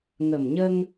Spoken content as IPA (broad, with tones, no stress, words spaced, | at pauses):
ŋə˨˩mɲə˧ŋ